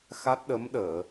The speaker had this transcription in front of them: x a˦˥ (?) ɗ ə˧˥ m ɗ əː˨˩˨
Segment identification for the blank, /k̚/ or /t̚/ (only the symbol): t̚